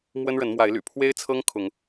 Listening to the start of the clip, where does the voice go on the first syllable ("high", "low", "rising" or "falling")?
high